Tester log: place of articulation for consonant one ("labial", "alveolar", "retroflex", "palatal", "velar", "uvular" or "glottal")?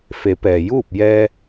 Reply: labial